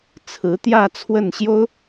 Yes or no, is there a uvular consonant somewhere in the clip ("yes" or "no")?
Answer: no